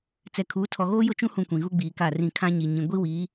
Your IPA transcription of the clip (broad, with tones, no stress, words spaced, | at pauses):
t͡sɛ˨kʰuː˨˦ tʰɔ˨ɣoː˦jʊ˦˨ t͡ʃũ˦hũ˨ kʷĩ˨ɣu˦ɡ͡biː˨ ka˦˨rĩ˦˨ kʰã˦ɲi˨ ɲĩ˨ ɡʷi˦wiː˨˦